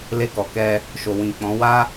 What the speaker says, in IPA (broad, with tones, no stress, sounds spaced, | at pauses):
l e˧ k ɔ˨ k ɛ˧ | ʃ o˨ w ĩ˨ k͡p ɔ̃˨˦ w a˦